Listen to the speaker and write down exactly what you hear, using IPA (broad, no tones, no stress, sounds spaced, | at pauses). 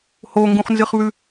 h o ŋ ɡ ũ χ n z ɨ χ β ʉ